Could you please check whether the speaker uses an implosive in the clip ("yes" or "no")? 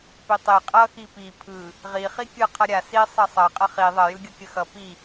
no